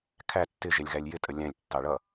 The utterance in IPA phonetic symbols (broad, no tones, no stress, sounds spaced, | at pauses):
kʰ æ tː ɪ ʒ ɛ lʲ ɣ æ lʲ j ɪ tʼ ə lʲ æ̃ lʲ tː ɑ ɭ ʌ